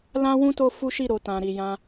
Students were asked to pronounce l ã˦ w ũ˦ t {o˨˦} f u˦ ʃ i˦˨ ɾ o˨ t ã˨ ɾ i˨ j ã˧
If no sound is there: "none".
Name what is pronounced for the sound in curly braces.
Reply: o˦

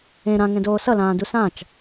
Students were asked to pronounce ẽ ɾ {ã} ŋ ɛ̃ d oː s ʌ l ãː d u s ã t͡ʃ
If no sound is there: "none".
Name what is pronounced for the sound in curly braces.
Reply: ã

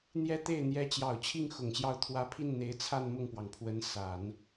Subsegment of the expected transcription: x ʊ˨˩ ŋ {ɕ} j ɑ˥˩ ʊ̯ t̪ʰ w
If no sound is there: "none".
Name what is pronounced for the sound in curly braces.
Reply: ɕ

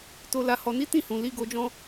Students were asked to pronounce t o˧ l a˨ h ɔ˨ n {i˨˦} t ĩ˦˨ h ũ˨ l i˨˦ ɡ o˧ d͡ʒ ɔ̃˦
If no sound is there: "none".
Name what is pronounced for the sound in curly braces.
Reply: i˨˦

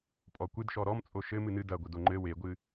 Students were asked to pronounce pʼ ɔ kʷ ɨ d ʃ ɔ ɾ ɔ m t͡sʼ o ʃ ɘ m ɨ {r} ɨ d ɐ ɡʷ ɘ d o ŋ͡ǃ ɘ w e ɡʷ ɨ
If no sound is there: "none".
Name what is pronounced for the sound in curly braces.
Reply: n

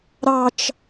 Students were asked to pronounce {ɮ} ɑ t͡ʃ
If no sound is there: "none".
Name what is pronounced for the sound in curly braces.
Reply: ɾ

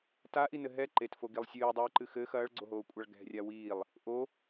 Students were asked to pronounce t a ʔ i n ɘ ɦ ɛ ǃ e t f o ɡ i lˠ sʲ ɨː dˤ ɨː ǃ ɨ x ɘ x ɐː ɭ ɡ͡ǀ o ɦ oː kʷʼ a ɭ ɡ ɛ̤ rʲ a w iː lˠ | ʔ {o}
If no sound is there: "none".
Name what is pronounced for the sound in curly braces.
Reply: o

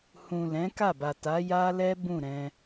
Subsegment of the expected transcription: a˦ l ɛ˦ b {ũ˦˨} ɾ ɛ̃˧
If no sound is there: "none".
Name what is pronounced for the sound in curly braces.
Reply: ũ˦˨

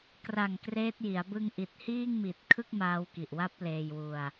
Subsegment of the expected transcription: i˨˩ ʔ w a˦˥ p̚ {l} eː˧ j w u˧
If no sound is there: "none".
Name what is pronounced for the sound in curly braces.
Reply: l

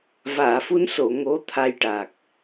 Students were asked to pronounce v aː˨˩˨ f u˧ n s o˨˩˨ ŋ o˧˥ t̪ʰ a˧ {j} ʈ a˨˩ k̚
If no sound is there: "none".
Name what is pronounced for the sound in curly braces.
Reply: j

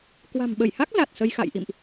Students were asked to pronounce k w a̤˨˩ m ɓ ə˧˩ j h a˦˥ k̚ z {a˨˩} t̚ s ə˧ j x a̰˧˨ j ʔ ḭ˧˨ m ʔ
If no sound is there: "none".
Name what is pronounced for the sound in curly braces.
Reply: a˨˩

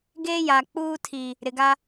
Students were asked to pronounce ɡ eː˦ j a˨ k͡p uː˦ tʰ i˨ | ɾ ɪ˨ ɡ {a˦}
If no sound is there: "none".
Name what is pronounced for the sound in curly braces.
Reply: a˦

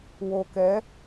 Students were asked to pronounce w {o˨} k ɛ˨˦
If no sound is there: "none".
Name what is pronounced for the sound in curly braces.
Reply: o˨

